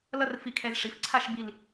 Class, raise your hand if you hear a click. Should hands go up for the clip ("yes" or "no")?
yes